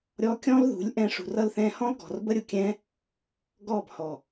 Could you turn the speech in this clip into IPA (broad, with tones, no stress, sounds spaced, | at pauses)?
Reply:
ɾʲ ɔ˧ kʲ ɔ̃˦ l ð ṳ˨˦ lʲ ʔ ɛ̃˧ ʂ ṳ˨ r ʌ˧ l θ ɛ̃ː˧ h ɔ̃˦ l ɡ ɔ̤˨ r b ə˦ ɾʲ ʊ˨ kʲ ɛ̃ː˦ | ɡ ɔː˦˨ b h ɔː˨